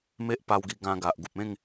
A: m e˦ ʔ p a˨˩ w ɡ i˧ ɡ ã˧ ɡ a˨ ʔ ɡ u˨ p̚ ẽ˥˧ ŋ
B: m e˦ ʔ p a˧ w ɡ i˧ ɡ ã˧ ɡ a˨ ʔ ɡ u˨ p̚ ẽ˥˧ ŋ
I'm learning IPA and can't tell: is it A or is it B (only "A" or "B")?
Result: B